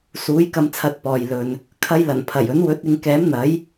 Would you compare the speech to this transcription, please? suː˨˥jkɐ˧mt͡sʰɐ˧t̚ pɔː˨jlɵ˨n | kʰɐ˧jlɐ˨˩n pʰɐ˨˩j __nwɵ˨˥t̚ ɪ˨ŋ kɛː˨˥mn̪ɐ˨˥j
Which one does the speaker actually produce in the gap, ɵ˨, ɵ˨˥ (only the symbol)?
ɵ˨˥